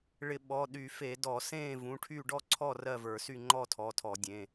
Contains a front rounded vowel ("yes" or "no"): yes